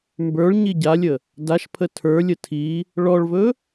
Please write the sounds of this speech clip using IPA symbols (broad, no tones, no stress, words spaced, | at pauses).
mbə˞ɭ ɲiɟalʲə | daʃpʰə tʰə˞lʲə tʰi | ɭɔɭvɵ